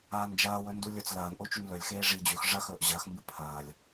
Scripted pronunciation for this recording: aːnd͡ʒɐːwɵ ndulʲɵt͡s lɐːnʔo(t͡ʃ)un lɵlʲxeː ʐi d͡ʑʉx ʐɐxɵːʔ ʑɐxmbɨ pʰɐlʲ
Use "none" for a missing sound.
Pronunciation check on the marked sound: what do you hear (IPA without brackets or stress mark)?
t͡ʃ